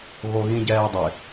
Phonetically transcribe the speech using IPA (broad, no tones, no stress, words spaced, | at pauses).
ɣoɣĩɟɛːdˤɪ